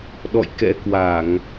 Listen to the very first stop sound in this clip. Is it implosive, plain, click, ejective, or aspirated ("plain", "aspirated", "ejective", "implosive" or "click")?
implosive